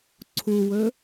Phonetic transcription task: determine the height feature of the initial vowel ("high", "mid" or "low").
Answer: high